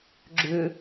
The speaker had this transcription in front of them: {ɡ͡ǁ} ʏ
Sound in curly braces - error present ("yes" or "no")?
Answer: no